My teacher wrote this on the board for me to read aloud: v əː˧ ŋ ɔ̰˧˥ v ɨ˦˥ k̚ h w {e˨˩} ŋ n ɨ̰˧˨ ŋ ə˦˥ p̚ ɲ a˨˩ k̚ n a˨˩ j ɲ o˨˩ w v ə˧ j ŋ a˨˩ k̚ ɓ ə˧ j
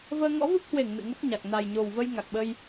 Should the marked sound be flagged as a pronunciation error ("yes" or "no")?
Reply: yes